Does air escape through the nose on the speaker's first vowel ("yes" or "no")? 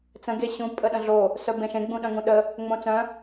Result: yes